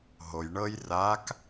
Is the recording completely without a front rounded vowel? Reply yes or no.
yes